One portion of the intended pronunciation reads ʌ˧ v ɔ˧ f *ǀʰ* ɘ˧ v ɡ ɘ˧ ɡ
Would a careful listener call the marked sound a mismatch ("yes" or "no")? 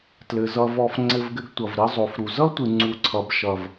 yes